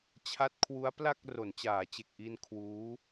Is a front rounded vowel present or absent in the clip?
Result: absent